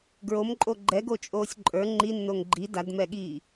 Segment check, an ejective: present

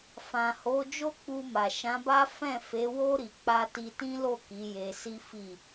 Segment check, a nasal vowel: present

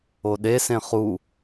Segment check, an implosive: present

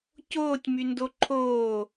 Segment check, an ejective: absent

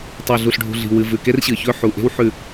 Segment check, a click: absent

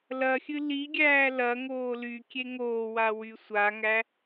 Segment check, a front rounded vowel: present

